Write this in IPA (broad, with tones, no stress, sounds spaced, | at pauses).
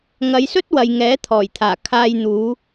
ŋ ɐ˨˧ j s ɵ˥ t̚ w ɐ˨ j ŋ ɛː˨˥ t̪ʰ ɔː˨˩ j t̪ʰ aː˨˩ kʰ aː˧ j n̪ uː˨˧